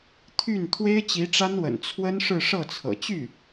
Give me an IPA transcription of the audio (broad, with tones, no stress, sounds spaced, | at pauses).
t̪ʰ y˥˩ n t̪ʰ w e˥ ɪ̯ t͡ɕ i˧˥ ʈ͡ʂ a˥ n w ə̰˨˩ n t͡sʰ w ə˥ n ʂ ɻ̩˥˧ ʂ ɤ˥˩ t͡sʰ ɤ̰˨˩ t͡ɕ y˥˩